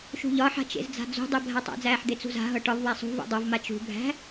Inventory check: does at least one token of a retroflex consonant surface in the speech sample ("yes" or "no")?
yes